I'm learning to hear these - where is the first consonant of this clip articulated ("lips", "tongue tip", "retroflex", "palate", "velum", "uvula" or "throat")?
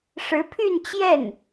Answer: retroflex